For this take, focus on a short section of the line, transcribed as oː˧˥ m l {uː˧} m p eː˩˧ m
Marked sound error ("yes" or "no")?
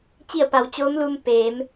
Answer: no